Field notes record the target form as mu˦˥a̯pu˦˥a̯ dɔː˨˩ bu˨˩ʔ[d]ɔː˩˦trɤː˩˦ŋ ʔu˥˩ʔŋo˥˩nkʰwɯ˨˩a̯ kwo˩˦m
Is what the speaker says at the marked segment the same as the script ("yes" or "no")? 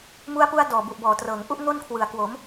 no